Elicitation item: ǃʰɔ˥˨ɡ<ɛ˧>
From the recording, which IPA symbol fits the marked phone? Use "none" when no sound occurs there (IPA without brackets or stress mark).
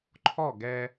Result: ɛ˧